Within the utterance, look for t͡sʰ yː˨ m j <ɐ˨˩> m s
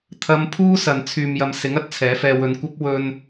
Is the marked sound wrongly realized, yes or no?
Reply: yes